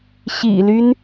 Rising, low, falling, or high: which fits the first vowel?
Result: low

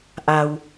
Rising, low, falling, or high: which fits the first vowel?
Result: low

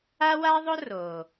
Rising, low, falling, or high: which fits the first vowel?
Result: high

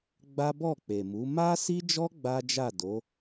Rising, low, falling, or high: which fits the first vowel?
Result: high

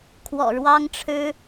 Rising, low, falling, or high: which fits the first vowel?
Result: low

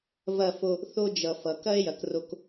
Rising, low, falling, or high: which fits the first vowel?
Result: falling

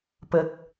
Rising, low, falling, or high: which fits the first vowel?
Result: high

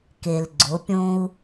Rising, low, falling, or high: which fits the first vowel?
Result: low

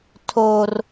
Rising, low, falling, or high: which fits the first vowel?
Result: high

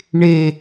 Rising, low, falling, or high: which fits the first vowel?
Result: low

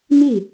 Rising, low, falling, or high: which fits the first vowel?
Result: falling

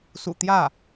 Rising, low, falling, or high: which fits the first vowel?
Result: low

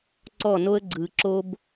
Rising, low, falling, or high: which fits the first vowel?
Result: falling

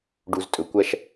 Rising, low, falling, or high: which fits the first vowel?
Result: low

